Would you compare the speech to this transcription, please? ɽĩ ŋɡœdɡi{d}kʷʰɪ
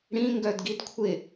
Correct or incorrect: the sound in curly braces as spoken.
correct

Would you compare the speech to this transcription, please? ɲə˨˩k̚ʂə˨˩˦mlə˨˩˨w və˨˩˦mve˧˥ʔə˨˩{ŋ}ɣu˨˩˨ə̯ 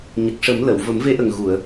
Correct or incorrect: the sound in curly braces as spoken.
correct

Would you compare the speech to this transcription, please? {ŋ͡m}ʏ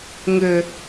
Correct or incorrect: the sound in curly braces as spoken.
incorrect: ŋ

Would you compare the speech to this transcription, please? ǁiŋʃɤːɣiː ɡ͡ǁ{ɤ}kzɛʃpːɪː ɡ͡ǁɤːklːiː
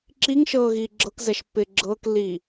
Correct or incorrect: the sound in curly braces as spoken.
correct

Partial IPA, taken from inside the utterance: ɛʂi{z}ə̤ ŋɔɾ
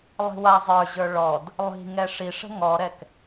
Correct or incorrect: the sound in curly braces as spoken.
incorrect: ʂ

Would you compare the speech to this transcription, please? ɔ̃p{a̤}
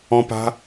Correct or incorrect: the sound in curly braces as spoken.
correct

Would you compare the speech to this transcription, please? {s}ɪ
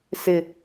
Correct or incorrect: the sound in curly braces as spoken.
correct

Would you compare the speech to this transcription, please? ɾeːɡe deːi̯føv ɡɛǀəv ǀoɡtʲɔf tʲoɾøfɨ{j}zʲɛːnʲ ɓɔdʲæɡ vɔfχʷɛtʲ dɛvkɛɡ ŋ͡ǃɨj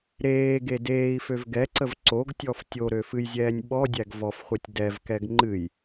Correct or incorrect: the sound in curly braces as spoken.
correct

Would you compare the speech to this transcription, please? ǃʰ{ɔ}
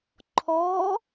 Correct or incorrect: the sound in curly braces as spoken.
correct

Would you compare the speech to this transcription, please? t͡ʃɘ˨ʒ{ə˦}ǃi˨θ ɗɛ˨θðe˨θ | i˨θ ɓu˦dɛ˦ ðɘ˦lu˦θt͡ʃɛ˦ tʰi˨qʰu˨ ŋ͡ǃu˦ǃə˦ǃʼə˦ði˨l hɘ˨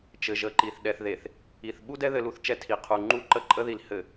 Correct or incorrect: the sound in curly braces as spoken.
incorrect: ə˨˦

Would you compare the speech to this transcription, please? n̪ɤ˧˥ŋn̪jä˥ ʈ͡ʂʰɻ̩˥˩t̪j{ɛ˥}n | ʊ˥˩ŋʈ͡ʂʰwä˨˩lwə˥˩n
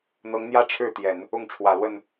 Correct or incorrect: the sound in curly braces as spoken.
incorrect: ɛ˨˩˦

